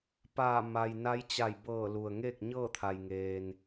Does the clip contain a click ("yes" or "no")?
no